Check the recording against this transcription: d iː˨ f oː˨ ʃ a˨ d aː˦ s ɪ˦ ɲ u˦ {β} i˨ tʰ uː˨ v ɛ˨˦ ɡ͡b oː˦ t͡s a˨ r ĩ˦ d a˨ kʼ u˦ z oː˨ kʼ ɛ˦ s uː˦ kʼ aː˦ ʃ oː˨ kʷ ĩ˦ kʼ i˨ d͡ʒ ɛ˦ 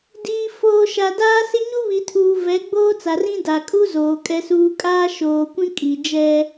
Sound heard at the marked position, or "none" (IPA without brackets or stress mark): β